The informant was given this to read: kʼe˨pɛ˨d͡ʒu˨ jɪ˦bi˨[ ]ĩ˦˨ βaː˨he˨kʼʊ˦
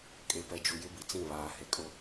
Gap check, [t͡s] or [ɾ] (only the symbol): t͡s